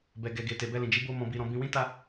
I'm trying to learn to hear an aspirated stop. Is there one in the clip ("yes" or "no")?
no